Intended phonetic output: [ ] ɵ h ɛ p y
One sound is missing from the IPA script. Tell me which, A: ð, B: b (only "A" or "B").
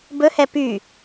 B